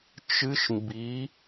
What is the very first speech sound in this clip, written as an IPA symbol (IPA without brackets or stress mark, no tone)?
t͡ʃ